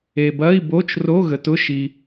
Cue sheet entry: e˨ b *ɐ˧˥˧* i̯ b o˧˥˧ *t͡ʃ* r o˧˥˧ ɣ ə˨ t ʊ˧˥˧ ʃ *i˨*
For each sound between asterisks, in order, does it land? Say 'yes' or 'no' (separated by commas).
yes, yes, yes